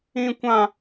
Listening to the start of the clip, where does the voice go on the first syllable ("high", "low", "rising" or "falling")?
high